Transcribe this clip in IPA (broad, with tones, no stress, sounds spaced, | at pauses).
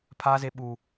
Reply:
pʰ a˦ z e˦ ɓ uː˦